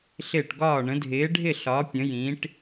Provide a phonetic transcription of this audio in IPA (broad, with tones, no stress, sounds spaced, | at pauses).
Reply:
ɬ ɪː˧˩ ʈ ɡ ɒː˧˩ ɳ ə̃˩˧ dʱ ɪː˩˧ ɖʱ ɪ˧˩ ɬ ɒ˩˧ pʲ ə̃˩˧ j ĩ˩˧ ʈ